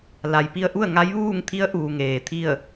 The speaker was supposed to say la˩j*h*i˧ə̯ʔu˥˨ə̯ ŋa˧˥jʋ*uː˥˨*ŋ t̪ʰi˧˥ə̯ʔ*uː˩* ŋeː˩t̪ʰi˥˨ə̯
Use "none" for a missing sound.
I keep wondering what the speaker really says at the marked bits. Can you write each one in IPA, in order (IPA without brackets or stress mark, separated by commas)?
p, uː˥˨, uː˩